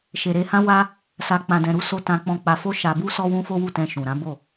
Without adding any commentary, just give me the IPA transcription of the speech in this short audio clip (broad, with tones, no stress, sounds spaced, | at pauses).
ʃ e˨ ɾ e˧ h ã˦ w a˦ | s a˧ k͡p ã˨ d ɛ̃˨ ɾ u˨˦ s o˧ t ã˧ k͡p ɔ̃˧ k͡p a˧ f o˦ ʃ a˧ b u˦ s ɔ˦ w ũ˦ f o˦ w u˦˨ t ɛ̃˧ ʃ ũ˨ ɾ ã˨˦ b o˦˨